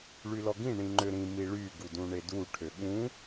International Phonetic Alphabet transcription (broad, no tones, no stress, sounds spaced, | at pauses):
ɭ y l ɔ ɡ ĩ ɳ ĩ ŋ͡ǃ ø ɾ ĩ m i ɭ y ɡ u d ũ ɳ e d u ʈʰ ø ɠ ũ